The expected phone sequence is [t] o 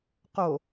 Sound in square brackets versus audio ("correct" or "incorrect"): incorrect